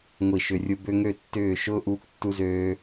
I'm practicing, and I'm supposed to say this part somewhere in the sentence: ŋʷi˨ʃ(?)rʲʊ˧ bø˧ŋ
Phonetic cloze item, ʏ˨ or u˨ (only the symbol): ʏ˨